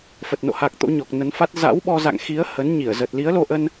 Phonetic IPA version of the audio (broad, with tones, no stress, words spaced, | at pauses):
fə˨˩t̚ no̰˧˨ha˨˩k̚ t̪o̰˧˥ɲɔ˨˩k̚nə˨˦nfa˦˥t̚ za̰˧˥wɓɔ˧za̰˧˨ŋxi˨˦ə̯ hə˨˦nɲi˧˩ə̯zə˨˩t̚ li˨˦ə̯lo˧ʔə˧n